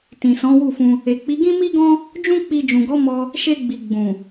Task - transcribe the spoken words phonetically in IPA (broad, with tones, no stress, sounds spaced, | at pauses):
t ĩ˨ s ɔ̃˨˦ w u˦˨ f ũ˧ | e˨ k͡p i˨˦ ɡ ĩ˦ m i˦ ɡ ɔ̃˦ | d͡ʒ ũ˦ k͡p i˧ d͡ʒ ũ˨ ɡ ɔ˨˦ m ɔ˧ | ʃ e˧ ɡ͡b i˨ ɡ͡b ũ˨